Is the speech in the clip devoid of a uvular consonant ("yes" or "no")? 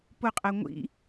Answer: no